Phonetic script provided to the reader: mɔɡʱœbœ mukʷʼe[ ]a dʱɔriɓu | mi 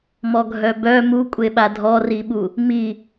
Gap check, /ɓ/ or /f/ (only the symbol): ɓ